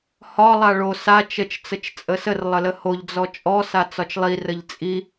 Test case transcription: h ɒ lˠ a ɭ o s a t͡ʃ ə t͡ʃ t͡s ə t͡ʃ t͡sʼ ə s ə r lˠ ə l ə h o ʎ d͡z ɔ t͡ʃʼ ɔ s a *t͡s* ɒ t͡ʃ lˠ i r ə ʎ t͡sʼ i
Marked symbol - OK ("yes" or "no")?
yes